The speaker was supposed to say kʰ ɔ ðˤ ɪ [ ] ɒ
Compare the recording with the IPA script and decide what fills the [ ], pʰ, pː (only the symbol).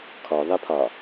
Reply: pʰ